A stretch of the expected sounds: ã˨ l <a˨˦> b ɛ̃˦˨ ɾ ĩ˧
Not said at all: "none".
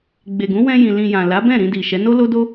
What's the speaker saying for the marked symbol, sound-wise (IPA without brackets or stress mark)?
a˨˦